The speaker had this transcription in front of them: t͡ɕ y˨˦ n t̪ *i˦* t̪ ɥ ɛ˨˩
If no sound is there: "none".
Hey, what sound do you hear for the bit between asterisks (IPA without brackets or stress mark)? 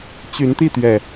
i˥˨